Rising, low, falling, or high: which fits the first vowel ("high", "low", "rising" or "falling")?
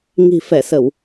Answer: low